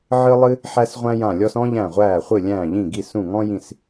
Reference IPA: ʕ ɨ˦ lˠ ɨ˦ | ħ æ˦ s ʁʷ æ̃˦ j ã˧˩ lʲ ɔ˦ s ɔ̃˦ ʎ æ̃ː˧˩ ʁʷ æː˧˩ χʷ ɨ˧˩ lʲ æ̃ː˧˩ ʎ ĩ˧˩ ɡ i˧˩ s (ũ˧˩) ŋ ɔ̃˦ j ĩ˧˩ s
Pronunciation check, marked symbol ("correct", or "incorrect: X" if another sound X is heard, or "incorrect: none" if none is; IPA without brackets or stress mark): correct